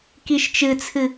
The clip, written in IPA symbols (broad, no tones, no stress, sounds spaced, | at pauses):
k i ʃ t͡ʃ ɨ t͡sʰ ɨ